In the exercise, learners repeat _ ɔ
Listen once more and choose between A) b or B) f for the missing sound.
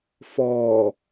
B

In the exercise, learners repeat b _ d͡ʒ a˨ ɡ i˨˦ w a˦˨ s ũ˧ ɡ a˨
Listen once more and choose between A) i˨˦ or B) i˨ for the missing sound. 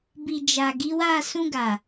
B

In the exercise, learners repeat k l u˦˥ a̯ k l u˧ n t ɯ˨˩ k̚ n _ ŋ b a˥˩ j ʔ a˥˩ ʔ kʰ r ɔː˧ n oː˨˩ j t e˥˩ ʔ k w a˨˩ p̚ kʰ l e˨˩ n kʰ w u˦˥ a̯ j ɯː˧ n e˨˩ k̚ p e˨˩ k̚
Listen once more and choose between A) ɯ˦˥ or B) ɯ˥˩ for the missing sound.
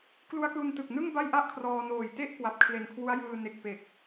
B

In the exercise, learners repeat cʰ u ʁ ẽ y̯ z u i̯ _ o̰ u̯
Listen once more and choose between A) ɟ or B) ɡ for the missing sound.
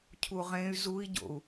A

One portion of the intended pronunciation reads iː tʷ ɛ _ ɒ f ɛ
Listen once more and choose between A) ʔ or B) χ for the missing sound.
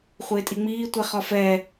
B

